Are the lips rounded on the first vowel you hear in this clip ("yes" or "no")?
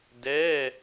no